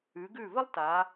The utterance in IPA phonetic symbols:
ʉ˩˧ɡʉ˧˩ və˥lˠta˩˧

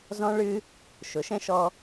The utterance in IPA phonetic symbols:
zɔ̃˦ɭɨ˦ | ʃʊ˩˥ʃɛ̃˦ʃɔ˦

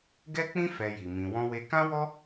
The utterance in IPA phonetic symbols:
ɡɛ˦k͡pĩ˦ fɛ˧ji˨ mĩ˨wɔ̃˧we˧ kã˦wɔ˦

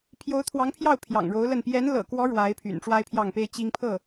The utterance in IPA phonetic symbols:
pʰjo˧˥ʊ̯t̪ʰwɑ˧˥ŋpʰjɑ˥˩ʊ̯ pʰjɑ̰˨˩ŋɻo˧˥ʊ̯lə˥˩n pjɛ˧˥nlɤ̰˨˩kwɔ˧˥ ɻwa˧˥ɪ̯pʰy̰˨˩n ʈ͡ʂwa˥ɪ̯pʰjɑ˥˩ŋpe˥ɪ̯ t͡ɕi˥ŋpʰɤ˥˩

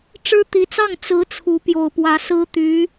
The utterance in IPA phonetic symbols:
ʈ͡ʂɻ̩˥t̪i˧˥t͡sɑ˥˩ŋ t͡sɹ̩˧˥ t͡sʰu˧˥pjo˨˩ʊ̯pwä˧˥ sɹ̩˥t̪y˧˥

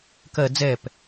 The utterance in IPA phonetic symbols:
kɜ d͡zɛp

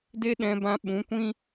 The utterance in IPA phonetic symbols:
de˦ɗɛ̃˧bã˧ ɓũ˨˦kʷĩ˦

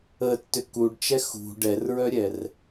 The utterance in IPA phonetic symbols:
ətːʏ kuɖt͡ʃɛ xṳ ɖɛrɹœɾʲɛr

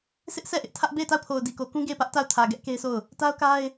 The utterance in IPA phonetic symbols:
sɪ˦ʔsʰɛ˦˨ʔɪ˦ʔ tʰä˦ʔ be˦˨ɪ̯ta˦˨ʊ̯pʰo˨ʊ̯ di˨ko˨ kũ˦ɡe˦˨ɪ̯pä˦ʔ ta˦˨ʊ̯ tʰä˨ ɡɛ˦ʔke˦ɪ̯sʰo˦˨ʊ̯ | ta˦ʊ̯ka˦ɪ̯

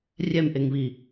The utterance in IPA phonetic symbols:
rʲɛmʔeŋβi

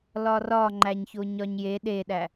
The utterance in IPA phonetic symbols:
lɒrɒ ŋ͡ǃæɲçoɲɒɲje ɗeɗæ

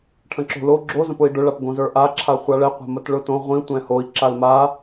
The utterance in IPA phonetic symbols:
ʈʰə̃ǁo̤lo ɡ͡ǁo zə̃pʊi̯ɖʊ ɭapɡõzə˞ʔa ǁʰaχʷaɭɛ qʷa̤mətɭʊtõ ʁʷĩ tʷɛ̃hoi̯ ǁalma

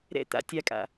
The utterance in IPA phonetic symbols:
ɾɛ̰ t̪a̰ tʲakʼa̰

